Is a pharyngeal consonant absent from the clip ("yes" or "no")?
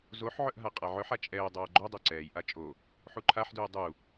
no